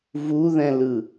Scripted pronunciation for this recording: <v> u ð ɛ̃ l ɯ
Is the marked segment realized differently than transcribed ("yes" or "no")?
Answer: no